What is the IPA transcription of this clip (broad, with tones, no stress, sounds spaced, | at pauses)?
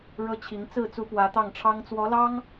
ɻ ɤ˥ t͡ɕʰ i˧˥ ŋ t͡s ɹ̩˥˩ t͡s u˧˥ p w ä˧˥ t̪ ɑ˥˩ ŋ ʈ͡ʂʰ ɑ˥ ŋ t͡s w ɔ˧˥ l ɑ˥ ŋ